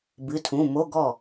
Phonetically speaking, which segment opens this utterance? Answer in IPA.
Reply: b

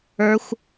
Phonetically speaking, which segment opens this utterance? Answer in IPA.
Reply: ə˞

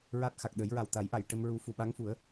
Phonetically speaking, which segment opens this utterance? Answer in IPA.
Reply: ɹ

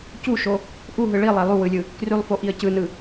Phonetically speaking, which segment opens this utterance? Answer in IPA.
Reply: c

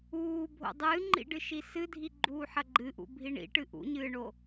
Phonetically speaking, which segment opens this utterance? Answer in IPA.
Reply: uː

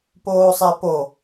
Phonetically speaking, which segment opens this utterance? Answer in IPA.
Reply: p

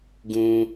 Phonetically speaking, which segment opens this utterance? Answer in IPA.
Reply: ɡ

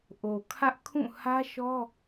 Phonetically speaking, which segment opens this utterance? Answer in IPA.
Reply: ʔ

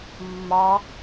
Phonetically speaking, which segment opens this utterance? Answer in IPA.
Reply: mː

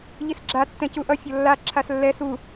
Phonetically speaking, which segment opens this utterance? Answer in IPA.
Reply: ʎ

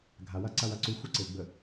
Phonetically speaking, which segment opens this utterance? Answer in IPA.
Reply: ɡʱ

